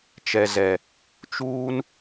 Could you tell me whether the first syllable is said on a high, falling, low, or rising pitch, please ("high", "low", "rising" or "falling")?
low